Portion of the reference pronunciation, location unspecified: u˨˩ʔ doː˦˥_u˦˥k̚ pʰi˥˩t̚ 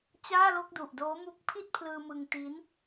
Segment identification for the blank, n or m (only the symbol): m